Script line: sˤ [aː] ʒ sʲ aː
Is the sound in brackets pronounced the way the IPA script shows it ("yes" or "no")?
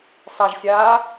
no